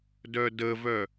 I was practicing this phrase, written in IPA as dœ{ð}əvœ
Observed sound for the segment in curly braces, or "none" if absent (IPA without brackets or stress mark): d